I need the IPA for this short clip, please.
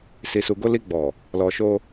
s i˨ s u˨ ɡ o˧ l i˧ ɡ͡b ɔ˨ | l ɔ˨ ʃ o˧

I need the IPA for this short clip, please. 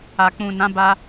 a˨ k͡p ũ˨ n ã˨˦ b a˧

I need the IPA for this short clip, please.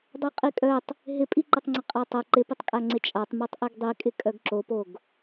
dˤ œ qʼ i kʼ œ tˤ | ɦ ɪ pʼ i ǃ ɐ tˤ ŋ͡ǀ ɪ qʼ a tˤ ɐ ǃ ɪ p ɪ tˤ kʼ a ŋ͡ǀ ɪ t͡ʃʼ a tˤ m œ tˤ ʔ i ɡ dˤ i kʼ ɪ kʼ œ ɡ ǁ o p o ɡ

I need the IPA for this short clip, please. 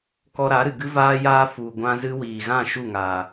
k ɔ˧ ɾ a˨˦ ɾ ɨ˨ ɡ ɨ˦ v aː˦ j aː˦ f u˨ ɡʷ ã˧ z ɨ˧ w iː˨ ɣ ã˦˨ ʃ u˦˨ ŋ a˨

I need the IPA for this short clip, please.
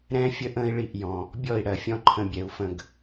ɾ ɛ̃˦ fʲ ə˦ ʔ ə̃ː˦ i̯ ɭ i˦˨ ʔ j ɔ̃˨ | bʲ ɔ˦˨ i̯ ɽ ɜ˨ fʲ ɔ̃˧ ǃʰ ə̃˧ bʲ ɛ˨ u̯ f ə̃˦˨ ɡ

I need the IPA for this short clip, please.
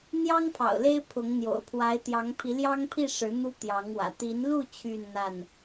n̪ j ɑ˦ ŋ pʰ ɑ̰˨˩ ʊ̯ l e˦ ɪ̯ pʰ ʊ˨˦ ŋ n̪ j o̰˨˩ ʊ̯ pʰ w a˨˦ ɪ̯ t̪ j ɑ˨˦ ŋ pʰ i˨˦ l j ɑ˦ ŋ pʰ i˥˨ ʂ ɻ̩˨˦ n̪ u˦ t̪ j ɑ˨˦ ŋ w ä̰˨˩ t̪ i˨˦ n l u˥˨ t͡ɕʰ y˥˨ n n̪ a˥˨ n

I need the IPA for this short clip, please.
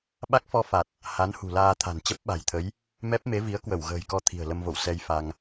ɓ a˦˥ k̚ f ɔ˧ f a˨˩ t̚ | h a˨˦ n h ṳ˨˩ l aː˧ t̪ʰ a̤˨˩ n t͡ɕ ə˦˥ p̚ ɓ a̤˨˩ j t̪ʰ ə˨˦ j | m ɛ˦˥ p̚ m e˨˦ v i˨˦ ə̯ k w ə˧˩ w ɣ ə̤ː˨˩ j k ɔ˧ t̪ʰ i̤˨˩ ə̯ l ə˧ m v o̰˧˨ w s ɛ˧ j f a˧ ŋ

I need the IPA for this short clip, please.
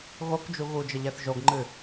ɣ o k d͡ʒ u ɣ u d͡ʒ ə ʎ ɛ θ ʒ o ɡ ŋ͡ǃ ɨ

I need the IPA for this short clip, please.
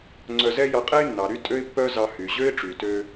ŋ͡ǀ œ˧ z ɛ˥ j ɑ˧ qʼ ɛ˥ ɪ̯ nː ɑ˩ ɾ y˥ tʼ ø˥ ɪ̯ pː œ˥ z ɑ˧ h y˩ ʑ ø˥ ɪ̯ ʈ͡ʂ y˩ t ø˧

